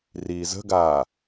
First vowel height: high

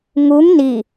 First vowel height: high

